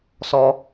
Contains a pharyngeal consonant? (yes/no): no